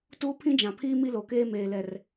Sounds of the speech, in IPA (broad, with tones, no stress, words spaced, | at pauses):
tuː˦pʰĩ˦d͡ʒã˨pʰiː˦ mi˦lo˨keː˦ meː˨lɛ˨r